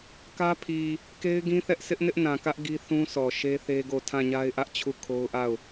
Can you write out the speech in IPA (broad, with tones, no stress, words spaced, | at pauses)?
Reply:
kä˦pʰi˨ | ke˦ɪ̯ɡĩ˦θɛ˦ʔ sʰɪ˦ʔnɪ˦ʔnã˨kä˦ʔ ɡi˦θũ˦sʰɔ˨ ʃe˦θe˦ɡo˦˨ tʰã˦˨ɲa˦ɪ̯ ʔä˦ʔt͡ɕʰu˦˨ kʰo˦ʊ̯ʔa˦˨ʊ̯